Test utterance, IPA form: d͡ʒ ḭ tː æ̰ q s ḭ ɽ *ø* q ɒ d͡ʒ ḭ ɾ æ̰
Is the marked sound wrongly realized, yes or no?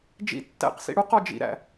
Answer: yes